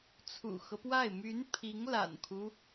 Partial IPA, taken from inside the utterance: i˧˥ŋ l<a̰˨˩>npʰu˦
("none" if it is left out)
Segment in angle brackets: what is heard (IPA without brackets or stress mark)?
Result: a̰˨˩